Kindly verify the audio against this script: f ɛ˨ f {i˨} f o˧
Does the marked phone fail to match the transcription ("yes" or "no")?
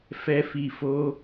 no